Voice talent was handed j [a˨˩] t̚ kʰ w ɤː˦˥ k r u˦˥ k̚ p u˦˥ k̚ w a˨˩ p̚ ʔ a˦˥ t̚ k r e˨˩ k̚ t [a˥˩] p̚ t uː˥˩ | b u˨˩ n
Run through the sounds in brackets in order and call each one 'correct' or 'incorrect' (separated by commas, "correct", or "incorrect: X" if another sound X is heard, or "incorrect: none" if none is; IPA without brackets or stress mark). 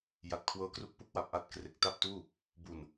correct, correct